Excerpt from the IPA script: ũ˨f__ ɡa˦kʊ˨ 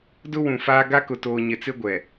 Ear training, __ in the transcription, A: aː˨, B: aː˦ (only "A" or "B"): B